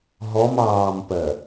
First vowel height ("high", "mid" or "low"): mid